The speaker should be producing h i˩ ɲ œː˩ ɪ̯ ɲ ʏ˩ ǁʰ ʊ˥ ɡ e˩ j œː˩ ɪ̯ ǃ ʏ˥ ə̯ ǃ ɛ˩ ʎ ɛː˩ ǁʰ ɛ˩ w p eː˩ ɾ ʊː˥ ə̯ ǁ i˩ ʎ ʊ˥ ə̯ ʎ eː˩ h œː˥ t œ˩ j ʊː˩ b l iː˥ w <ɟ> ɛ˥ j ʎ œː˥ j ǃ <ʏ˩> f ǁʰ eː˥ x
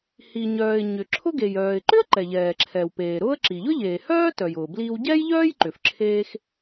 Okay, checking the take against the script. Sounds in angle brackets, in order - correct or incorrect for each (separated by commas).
correct, correct